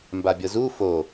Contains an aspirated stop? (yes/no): no